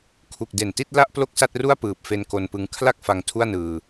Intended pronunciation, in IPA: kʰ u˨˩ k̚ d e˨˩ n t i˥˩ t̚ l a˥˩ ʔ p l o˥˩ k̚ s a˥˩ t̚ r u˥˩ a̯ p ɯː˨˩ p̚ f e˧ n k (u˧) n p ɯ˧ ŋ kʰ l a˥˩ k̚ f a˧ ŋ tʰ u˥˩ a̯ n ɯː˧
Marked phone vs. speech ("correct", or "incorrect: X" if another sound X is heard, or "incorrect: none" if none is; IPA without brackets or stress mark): incorrect: o˧